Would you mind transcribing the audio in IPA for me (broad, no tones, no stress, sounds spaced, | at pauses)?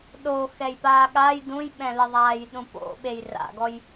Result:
ɗ o x ɛ j p aː ɠ a j d ũ j ɓ ɛ̃ l ɪ ðˤ aː j ɗ ũ p o̰ ɓ e j r a̰ ɡ ɔ j